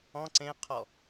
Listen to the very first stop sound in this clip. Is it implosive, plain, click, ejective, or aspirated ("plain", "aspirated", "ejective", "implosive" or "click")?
click